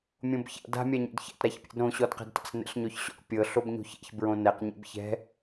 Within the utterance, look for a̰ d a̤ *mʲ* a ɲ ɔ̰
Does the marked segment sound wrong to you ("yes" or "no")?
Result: no